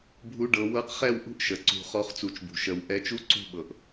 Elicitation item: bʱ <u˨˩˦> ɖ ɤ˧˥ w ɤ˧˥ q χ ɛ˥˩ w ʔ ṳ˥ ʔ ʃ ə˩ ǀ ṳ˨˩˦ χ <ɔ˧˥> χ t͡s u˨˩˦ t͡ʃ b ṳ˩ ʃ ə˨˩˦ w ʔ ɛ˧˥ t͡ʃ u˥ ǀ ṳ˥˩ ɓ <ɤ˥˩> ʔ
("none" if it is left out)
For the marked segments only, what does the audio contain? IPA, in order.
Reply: u˥, ɔ˧˥, ɤ˩

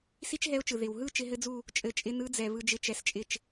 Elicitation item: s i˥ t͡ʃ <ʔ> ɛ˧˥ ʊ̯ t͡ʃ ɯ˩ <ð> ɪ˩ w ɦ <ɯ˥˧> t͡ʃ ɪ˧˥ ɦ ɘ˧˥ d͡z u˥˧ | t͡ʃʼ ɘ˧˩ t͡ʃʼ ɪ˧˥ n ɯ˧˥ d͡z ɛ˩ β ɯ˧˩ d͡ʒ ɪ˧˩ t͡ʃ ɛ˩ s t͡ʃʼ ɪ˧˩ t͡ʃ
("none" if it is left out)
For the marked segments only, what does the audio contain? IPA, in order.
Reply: ɦ, ð, ɯ˥˧

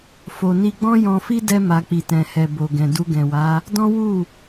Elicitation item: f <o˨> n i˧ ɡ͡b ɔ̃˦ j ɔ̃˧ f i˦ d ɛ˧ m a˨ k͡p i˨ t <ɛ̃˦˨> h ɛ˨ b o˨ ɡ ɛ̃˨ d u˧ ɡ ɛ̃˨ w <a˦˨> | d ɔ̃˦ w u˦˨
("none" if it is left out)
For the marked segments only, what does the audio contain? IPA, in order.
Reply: o˨, ɛ̃˨, a˨˦

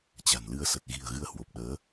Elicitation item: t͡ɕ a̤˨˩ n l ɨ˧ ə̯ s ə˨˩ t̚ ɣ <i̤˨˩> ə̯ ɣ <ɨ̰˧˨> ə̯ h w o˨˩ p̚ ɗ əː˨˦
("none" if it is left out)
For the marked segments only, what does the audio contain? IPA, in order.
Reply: i̤˨˩, ɨ˧

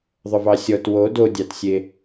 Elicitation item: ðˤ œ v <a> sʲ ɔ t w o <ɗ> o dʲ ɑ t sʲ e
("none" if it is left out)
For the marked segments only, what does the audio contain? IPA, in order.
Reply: ɑ, d

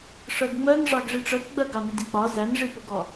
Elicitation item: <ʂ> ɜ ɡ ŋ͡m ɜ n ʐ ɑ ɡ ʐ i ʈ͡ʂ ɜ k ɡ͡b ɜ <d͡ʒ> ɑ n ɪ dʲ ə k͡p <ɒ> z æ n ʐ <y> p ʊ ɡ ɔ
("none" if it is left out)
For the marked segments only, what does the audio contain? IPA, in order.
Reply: ʂ, ɡ, ɒ, i

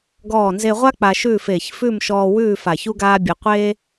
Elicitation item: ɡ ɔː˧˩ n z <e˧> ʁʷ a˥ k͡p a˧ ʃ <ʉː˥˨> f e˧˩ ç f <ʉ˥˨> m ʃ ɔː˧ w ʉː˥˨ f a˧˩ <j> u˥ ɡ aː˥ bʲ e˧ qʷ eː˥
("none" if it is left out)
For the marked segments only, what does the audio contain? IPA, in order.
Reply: e˧, ʉː˥˨, ʉ˥˨, ç

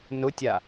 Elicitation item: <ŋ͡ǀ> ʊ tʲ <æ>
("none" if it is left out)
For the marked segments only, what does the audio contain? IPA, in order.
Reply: n, a

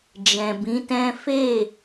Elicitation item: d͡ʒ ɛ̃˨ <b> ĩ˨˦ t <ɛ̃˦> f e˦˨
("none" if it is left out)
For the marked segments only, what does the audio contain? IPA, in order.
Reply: b, ɛ̃˦

